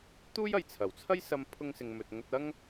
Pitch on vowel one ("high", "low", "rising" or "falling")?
high